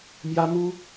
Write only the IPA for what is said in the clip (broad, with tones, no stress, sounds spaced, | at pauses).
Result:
m j ä˥ m u˥